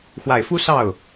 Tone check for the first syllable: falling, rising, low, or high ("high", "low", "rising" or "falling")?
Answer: low